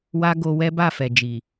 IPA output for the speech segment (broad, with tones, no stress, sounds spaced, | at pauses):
w a˧ ɡ o˧ w ɛ˦ b a˦˨ f ɛ˨ d͡ʒ i˨